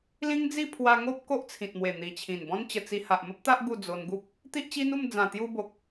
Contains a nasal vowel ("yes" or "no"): yes